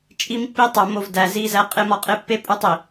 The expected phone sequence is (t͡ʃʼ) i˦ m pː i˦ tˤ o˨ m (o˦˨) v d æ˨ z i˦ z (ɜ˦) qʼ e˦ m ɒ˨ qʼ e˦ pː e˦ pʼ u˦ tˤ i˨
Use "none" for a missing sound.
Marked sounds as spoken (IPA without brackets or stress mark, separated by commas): t͡ʃʼ, o˦˨, æ˦